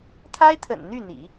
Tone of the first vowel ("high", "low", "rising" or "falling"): high